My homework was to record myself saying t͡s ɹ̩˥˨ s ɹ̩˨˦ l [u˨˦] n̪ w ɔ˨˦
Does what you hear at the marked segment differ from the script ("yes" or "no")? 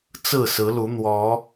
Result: no